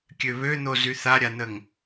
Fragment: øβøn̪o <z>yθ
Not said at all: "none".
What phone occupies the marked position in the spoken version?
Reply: z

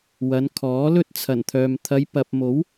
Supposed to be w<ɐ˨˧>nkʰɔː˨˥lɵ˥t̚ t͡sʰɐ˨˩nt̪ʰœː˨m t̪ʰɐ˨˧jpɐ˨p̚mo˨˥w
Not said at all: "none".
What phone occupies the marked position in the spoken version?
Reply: ɐ˨˧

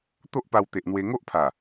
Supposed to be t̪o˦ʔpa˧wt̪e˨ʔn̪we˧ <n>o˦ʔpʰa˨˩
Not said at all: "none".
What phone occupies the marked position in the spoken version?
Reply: ŋ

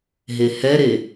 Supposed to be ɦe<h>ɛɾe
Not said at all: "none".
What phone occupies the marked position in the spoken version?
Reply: h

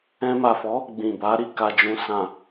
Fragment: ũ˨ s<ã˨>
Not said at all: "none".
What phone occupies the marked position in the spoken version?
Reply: ã˨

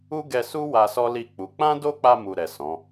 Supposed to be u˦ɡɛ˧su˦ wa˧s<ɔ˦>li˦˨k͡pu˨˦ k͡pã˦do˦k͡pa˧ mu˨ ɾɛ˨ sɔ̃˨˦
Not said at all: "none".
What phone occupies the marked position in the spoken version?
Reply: ɔ˦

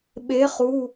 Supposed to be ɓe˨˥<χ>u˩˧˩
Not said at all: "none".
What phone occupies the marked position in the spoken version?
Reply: χ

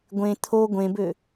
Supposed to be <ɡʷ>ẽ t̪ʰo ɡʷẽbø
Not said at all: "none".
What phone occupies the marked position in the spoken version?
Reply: ɡʷ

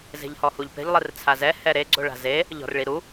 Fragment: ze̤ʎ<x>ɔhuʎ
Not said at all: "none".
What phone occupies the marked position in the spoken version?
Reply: h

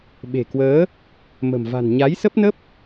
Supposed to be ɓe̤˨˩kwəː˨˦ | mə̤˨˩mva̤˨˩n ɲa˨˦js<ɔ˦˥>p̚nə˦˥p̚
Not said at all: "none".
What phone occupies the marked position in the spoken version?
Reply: ə˦˥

